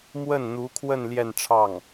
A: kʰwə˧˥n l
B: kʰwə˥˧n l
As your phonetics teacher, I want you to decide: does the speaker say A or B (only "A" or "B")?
B